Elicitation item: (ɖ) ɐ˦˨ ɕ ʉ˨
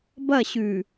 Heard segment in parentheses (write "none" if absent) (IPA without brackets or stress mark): b